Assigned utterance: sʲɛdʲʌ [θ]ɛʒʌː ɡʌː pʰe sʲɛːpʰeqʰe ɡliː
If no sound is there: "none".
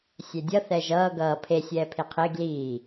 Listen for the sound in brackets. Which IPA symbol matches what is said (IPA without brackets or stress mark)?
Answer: θ